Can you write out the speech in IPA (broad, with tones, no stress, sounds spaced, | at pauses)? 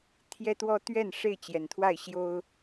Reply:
t̪ʰ j ɛ˦ t̪ w ɔ˦ t̪ ɥ ɛ˥˨ n ʂ e˥˨ ɪ̯ t͡ɕ j ɛ˩ n t̪ʰ w a˥˨ ɪ̯ ɕ j o˦ ʊ̯